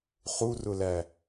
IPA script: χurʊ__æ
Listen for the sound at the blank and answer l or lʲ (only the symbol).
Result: l